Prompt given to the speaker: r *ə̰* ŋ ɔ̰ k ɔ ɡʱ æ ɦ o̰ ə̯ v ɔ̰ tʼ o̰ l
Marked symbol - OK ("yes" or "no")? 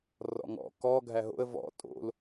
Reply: no